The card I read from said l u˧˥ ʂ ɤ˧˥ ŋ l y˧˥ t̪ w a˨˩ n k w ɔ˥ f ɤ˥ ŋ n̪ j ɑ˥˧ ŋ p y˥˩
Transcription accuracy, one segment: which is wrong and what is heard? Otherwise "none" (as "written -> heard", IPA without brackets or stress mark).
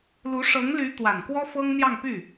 none